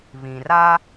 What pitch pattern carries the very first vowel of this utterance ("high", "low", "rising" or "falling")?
low